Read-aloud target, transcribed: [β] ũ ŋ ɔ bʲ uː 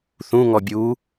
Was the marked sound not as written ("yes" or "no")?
yes